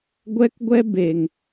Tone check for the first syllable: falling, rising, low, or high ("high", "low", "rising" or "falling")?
high